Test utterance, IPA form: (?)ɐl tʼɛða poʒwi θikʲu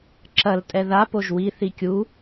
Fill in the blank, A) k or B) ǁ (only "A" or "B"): B